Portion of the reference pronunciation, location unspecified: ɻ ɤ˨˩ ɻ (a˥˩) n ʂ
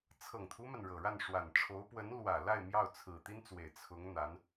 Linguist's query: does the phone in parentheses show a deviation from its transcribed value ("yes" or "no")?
no